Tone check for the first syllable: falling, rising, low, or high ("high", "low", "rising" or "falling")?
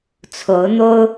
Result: rising